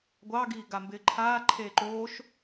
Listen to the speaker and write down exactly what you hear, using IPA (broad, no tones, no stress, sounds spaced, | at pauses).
ɡʷ ɑ ɡ iː ɡ a m b ɪː ǃʰ aː ǃʰ eː ǃ oː ʃ